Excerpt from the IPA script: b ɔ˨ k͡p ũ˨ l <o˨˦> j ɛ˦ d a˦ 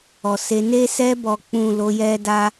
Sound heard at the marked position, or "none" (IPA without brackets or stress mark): o˨˦